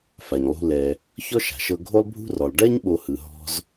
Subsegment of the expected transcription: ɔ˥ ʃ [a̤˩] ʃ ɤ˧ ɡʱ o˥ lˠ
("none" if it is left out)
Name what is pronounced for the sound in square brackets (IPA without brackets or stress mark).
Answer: a̤˩